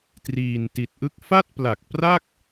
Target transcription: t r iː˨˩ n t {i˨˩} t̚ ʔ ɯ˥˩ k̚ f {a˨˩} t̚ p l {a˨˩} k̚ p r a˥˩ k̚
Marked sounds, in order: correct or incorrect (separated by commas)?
correct, incorrect, correct